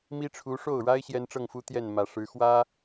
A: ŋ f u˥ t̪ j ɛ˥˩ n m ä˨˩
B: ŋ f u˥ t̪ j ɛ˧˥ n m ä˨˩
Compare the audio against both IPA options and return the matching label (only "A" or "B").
A